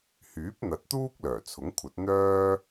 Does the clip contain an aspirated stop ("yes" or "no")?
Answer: yes